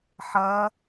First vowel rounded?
no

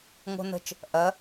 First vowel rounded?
yes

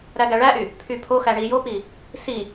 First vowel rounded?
no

